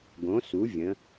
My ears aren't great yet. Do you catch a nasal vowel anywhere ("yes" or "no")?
yes